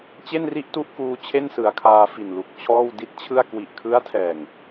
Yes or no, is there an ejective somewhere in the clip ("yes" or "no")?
no